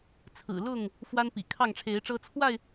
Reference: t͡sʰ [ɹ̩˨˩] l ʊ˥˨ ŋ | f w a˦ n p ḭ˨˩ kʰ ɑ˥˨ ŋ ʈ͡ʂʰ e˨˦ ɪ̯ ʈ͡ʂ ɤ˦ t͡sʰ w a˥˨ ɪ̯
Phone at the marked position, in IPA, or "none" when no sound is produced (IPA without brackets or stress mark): ɹ̩˨˩